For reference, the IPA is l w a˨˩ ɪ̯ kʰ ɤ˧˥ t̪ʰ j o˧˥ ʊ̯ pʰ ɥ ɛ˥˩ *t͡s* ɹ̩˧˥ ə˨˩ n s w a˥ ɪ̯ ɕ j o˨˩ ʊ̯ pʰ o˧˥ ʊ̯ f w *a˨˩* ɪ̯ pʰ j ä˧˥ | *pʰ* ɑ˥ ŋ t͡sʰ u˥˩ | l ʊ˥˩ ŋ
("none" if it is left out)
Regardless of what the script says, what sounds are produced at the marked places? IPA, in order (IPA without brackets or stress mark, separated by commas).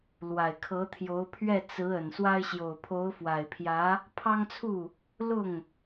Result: t͡s, a˨˩, pʰ